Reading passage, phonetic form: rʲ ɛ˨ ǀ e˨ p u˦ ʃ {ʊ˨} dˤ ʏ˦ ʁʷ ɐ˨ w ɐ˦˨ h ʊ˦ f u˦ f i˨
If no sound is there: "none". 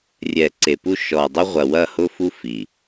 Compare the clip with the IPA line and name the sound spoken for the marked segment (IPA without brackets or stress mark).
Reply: ɔ˨